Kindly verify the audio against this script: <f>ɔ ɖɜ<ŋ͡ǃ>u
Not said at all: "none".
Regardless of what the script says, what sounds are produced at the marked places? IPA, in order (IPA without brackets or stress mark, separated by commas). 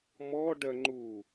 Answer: m, ŋ͡ǃ